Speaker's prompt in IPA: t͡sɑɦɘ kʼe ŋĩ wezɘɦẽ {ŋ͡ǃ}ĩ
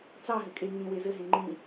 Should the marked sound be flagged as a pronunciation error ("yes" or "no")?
no